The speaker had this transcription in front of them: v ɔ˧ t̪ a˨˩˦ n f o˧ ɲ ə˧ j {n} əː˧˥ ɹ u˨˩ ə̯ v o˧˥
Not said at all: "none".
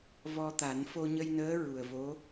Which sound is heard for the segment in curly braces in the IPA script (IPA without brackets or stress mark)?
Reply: n